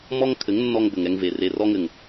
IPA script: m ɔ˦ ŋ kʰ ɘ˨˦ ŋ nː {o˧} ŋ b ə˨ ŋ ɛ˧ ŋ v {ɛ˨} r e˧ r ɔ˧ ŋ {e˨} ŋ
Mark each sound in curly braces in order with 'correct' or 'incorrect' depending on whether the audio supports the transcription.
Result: incorrect, incorrect, incorrect

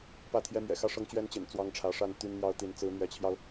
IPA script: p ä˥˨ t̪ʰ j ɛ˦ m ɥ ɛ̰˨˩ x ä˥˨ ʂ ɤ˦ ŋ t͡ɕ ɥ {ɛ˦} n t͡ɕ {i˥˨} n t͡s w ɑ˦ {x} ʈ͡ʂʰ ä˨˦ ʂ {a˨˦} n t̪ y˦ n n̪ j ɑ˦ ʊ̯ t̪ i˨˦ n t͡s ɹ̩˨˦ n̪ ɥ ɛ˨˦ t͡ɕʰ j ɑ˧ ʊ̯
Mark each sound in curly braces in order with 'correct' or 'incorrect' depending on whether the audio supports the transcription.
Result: correct, incorrect, incorrect, incorrect

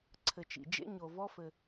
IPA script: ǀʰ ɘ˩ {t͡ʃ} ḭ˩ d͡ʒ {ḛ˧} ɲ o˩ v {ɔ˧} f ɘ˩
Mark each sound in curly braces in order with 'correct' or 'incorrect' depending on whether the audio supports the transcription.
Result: correct, correct, correct

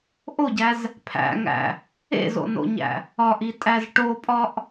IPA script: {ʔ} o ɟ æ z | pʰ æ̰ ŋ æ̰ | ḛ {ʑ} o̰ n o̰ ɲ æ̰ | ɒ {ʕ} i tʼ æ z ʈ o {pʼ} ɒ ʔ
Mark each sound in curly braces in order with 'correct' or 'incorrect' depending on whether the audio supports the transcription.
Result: correct, incorrect, incorrect, correct

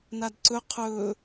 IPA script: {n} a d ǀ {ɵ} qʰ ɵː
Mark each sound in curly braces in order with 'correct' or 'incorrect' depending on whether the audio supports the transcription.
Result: correct, correct

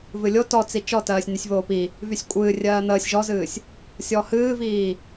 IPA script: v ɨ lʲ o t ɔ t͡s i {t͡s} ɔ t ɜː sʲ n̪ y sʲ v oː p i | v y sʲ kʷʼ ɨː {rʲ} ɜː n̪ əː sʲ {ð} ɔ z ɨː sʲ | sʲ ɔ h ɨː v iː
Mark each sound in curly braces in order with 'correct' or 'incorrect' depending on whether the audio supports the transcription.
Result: incorrect, correct, incorrect

